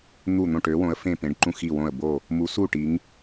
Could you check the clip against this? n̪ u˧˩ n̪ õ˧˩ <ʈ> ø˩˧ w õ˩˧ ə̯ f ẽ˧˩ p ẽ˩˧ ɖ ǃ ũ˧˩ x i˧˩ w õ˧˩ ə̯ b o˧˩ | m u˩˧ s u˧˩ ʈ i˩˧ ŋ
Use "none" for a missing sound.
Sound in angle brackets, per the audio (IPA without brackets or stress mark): ʈ